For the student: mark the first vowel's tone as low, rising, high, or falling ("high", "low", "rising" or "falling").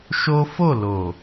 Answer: high